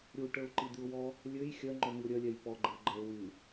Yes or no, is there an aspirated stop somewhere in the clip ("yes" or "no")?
no